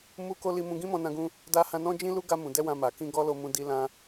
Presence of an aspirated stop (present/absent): absent